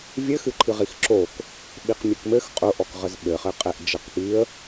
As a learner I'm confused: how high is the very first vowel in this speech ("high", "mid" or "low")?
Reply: mid